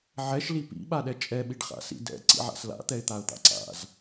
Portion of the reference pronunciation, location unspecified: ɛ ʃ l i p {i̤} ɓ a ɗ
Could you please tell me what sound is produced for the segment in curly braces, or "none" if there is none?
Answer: ḭ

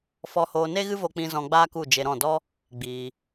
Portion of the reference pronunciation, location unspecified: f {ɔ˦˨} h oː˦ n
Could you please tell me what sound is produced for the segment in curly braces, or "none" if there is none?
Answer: ɔ˦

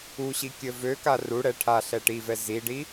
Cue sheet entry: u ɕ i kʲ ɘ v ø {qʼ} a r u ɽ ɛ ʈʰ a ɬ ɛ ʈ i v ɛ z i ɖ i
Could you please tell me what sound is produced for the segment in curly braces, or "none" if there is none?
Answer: k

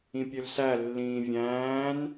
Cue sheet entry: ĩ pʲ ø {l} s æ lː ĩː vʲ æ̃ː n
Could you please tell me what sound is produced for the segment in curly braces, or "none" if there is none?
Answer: l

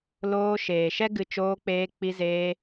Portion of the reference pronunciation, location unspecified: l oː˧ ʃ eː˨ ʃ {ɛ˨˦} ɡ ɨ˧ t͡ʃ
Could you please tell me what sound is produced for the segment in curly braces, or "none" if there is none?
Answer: ɛ˦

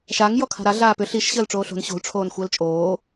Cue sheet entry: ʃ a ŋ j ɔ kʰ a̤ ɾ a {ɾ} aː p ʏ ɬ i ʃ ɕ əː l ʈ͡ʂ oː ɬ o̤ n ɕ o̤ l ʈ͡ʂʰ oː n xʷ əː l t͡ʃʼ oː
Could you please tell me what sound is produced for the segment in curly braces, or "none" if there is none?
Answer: ɮ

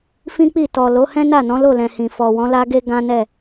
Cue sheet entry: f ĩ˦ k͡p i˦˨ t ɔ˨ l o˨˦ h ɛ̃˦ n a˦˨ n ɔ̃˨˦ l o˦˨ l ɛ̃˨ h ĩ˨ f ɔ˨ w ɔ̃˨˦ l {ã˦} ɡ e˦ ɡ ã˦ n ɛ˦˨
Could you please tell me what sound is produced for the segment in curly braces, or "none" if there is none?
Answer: a˦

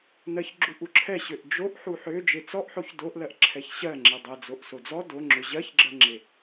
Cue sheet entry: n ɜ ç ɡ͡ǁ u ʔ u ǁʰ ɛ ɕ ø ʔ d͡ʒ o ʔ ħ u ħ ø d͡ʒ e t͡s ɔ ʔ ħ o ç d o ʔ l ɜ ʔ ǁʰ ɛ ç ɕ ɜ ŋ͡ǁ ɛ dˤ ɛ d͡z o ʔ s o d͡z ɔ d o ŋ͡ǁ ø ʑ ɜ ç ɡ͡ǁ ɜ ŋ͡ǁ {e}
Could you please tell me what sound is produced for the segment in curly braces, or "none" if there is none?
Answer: e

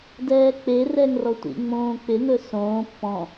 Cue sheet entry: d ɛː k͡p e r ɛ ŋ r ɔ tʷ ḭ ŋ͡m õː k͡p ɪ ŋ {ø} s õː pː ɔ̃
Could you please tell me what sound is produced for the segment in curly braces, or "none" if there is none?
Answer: ɵ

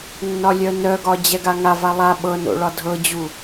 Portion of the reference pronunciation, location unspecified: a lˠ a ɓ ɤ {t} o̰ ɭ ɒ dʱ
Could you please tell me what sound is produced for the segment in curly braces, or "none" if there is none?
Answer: n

